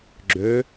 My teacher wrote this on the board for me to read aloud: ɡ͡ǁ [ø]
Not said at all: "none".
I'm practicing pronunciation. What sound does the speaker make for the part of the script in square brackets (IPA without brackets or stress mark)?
ø